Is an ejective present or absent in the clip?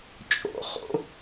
present